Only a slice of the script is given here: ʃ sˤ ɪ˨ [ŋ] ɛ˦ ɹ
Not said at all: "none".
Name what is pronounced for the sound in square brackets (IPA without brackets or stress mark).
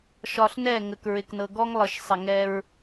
ŋ